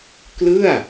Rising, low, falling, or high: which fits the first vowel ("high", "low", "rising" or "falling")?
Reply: falling